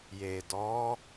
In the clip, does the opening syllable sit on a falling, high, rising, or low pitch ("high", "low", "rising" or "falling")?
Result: low